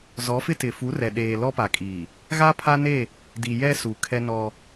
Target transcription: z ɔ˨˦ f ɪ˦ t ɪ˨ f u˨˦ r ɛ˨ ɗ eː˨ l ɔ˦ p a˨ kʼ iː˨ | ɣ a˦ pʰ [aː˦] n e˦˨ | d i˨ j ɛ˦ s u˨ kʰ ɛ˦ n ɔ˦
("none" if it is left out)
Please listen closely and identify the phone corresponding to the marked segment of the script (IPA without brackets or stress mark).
a˦